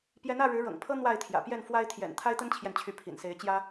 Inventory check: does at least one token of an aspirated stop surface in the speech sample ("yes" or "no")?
yes